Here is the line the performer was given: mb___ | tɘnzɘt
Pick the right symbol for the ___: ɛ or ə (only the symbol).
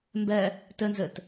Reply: ɛ